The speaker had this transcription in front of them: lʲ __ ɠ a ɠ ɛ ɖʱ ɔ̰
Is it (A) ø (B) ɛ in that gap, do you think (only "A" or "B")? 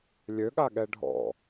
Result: A